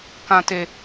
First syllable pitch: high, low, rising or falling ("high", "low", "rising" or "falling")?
high